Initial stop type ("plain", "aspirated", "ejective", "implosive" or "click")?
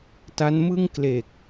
plain